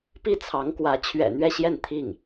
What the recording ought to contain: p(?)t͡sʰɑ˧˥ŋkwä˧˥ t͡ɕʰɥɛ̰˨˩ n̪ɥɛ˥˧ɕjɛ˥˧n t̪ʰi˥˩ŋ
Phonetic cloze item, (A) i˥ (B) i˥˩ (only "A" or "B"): B